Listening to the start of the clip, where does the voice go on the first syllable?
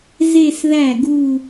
falling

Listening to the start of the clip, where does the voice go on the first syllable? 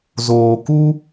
low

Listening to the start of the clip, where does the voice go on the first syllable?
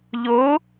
rising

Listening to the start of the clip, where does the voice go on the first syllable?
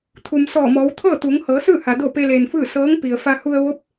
low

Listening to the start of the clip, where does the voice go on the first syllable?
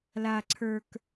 high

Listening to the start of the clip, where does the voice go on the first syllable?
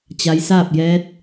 rising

